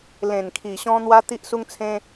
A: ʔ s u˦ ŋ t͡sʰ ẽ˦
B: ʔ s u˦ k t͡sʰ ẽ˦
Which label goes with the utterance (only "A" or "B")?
A